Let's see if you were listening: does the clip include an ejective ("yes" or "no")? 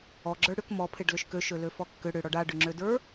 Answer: no